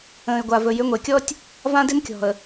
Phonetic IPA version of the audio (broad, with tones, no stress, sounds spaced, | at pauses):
ə̃ː˨ ɪ̯ ɡʷ a˨ v ɵ˨ j ʏ˨˦ ŋʷ e˨ kʲ ɔ˦ tʲ | v ã˦ d ɪ˦ n kʲ ɔ̤˨ ə̯